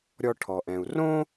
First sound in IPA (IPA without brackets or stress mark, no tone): ɾʲ